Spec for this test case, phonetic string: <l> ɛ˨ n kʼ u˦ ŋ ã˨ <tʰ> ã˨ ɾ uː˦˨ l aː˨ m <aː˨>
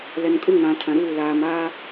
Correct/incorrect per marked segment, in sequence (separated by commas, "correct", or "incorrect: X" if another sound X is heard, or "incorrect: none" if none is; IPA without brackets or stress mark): correct, correct, incorrect: aː˦